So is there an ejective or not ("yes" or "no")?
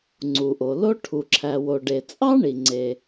yes